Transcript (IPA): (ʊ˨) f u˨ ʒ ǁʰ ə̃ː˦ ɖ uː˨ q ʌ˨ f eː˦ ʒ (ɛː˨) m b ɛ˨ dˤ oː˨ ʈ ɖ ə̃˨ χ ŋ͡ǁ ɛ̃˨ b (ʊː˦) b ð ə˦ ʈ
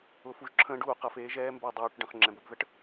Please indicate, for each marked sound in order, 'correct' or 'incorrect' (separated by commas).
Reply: correct, incorrect, incorrect